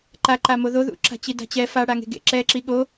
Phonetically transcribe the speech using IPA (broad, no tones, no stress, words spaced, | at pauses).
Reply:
ǃaǃamo ðoðṵǁa̤ t͡ɕida̤t͡ɕɛ fa ɽaŋe̤ɡḛ ǁɛǁi ɠo